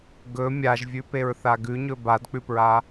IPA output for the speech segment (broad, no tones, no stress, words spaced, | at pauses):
ɡɵ mʲaʒvʲʉpeɹθa ɡʉɲɵ badk͡pʉpɹa